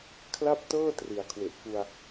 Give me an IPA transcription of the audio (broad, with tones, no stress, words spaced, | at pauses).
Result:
kʰla˥˩p̚tɤː˥˩ tri˨˩a̯kʰwe˨˩ʔku˧a̯